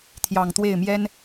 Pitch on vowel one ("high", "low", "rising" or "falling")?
low